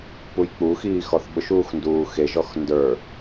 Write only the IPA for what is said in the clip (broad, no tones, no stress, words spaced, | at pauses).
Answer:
pujk͡puxiː xɔθɓʊʃuːx nduːxeʒɔx ndə˞